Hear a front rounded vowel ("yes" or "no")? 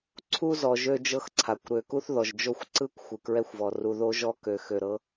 yes